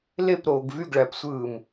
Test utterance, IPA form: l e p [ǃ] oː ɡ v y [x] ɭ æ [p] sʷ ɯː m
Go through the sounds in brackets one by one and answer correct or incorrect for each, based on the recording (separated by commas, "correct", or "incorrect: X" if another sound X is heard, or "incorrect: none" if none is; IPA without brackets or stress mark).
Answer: incorrect: ɾ, incorrect: ɡ, correct